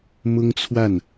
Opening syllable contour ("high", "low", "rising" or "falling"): high